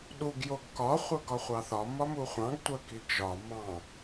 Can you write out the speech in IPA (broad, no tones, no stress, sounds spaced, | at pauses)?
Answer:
ɗ u ɡ j o ɡ k ɒ χʷ œ ɡ ɒ χʷ ɑ θ ɒ m ɒ m u χʷ ɑ̃ ɡ tʷ œ k i ɡ ʒ ɒ m ɑ̃